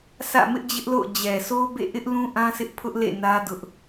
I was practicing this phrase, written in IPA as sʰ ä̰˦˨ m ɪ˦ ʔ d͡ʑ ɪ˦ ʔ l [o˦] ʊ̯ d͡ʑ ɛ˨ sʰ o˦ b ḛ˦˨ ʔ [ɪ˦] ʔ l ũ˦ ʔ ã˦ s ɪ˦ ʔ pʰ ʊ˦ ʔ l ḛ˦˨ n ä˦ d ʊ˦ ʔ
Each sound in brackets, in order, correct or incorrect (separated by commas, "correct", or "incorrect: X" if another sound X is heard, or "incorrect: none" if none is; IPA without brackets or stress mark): incorrect: o̰˦˨, correct